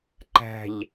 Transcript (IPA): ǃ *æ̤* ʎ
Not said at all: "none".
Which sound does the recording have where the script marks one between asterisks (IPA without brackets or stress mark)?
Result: æ̤